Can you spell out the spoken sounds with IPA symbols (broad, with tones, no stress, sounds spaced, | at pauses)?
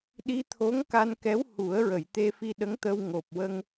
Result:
ɗ i˧ t̪ʰ o˧˥ ŋ k a˧ n k ɛ˧˥ w h u˨˩˦ ə̯ ɹ ə˨˩˨ j t̪ e˧ f i˧ ɗ ə˧˥ ŋ t̪ ə˧ w ŋ o˨˩ p̚ w ə˧ ŋ